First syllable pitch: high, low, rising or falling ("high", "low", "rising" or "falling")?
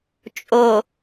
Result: low